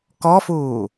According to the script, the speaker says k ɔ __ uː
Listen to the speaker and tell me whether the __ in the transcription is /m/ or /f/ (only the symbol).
f